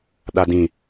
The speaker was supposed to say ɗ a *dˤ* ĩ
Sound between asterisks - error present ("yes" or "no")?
yes